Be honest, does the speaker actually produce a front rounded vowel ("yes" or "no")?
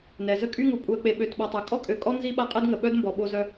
yes